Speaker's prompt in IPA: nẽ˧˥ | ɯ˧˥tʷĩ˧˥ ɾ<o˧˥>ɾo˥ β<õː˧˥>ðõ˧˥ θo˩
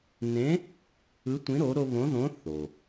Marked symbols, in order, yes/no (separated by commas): yes, no